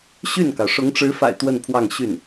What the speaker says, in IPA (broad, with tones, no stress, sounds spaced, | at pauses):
ɕ y˥˩ n k ɑ˩ ʊ̯ ʂ ʊ˧˥ ŋ ʈ͡ʂ ɻ̩˧˥ f a̰˨˩ ɪ̯ t̪ w ə˥˧ n pʰ w ɑ˥˧ ŋ ɕ y˥˩ n